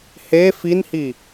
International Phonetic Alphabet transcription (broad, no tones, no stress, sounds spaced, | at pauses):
h e f i n h i